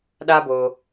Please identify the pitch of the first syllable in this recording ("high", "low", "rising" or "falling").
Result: high